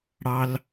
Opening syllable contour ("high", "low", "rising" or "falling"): low